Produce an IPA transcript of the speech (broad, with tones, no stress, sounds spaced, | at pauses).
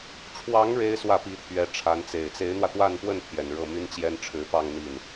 ʈ͡ʂʰ w ɑ˧˥ ŋ ɻ e˥ ɪ̯ s w ä˥˩ p i˧˥ t̪ʰ ɥ ɛ˧˥ ʈ͡ʂʰ a˧˥ n t͡s e˨˩ ɪ̯ t͡s e˧˥ ɪ̯ n̪ w ä˧ t̪ w a˥˧ n p w ə˥˩ n t̪ʰ j ɛ˨˩ n ɻ ɤ˥˩ m y˥ n t͡ɕ j ɛ˥ n ʈ͡ʂʰ ɻ̩˧˥ p ɑ˥˧ ŋ n̪ i˥˩ n